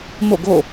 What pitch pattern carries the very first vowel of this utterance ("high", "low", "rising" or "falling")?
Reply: falling